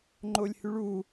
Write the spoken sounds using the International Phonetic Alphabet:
ŋ͡ǃolʲhyɭu

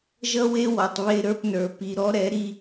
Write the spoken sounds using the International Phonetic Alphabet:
ʒʌ˦we˦wɔ˨tˤ βe˦ɾə˞˦pnə˞˨ pi˨ɾɔ˦ɾɛ˨˦ ɾi˦

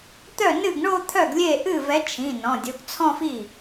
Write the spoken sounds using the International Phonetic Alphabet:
t̪œ˥˩nɨ˥˩ɡ ɳo˥˧t̪ʰœ˥˩ɡlʲe˥˩ʔɨ˥˩ vɛ˨˥t͡ʃʰĩ˩˧˩ nɔ̃˩˧˩dʲo˨˥ɡ t͡sʰɔ̃˥˧fi˥˩

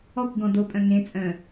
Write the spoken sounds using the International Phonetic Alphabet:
ɔkʷɡɔ̃ dopʼœ̃ ŋẽt͡sʼœ̃

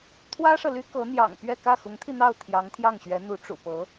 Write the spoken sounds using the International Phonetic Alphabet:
t̪ʰwä˥ʂɤ˨ly˥ kɤ˧˥n̪jɑ̰˨˩ŋpɥɛ˥˧ kä˥˩xʊ˧˥ŋt̪ʰi˧n̪ɑ˥˩ʊ̯ t̪ʰjɑ˧˥ŋt̪ʰjɑ˥˩ŋɕɥɛ˧˥n̪u˧˥ ʈ͡ʂṵ˨˩pɤ˧˥

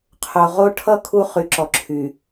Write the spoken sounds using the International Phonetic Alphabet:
qʰo˨ʁo˦ ʈʰʌ˦ kʰu˦χy˨ǁɔ˨ǁʰy˨

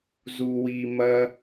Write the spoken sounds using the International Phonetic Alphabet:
zu˩wi˩ mɐ˨

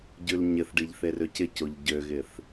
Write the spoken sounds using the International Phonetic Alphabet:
ɟʉlɲɪθɖiʎ θerøcɪcoʎ ɟøɣɪθ

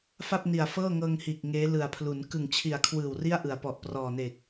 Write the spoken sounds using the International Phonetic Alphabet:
fa˥˩p̚ni˨˩a̯ fɤː˥˩ŋɤː˧ŋhiː˨˩k̚ ŋeː˦˥lɯ˨˩a̯pʰlu˩˦n kɯ˨˩ŋt͡ɕʰi˨˩a̯kʰwɯː˨˩w ri˥˩a̯ʔɯ˩˦a̯pɔ˨˩ʔ prɔː˨˩neː˨˩k̚

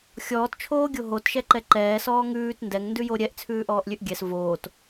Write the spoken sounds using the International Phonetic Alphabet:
xʲɔːtt͡ʃʰoːɡʲo ɦotʃɛǃɛ ǃɛːsɔː ŋʉːt ndɛŋndʉjo ɾʲɛʔt͡sʰʉːʔɔːʔlʲʉʔ ɡʲɛs voːt

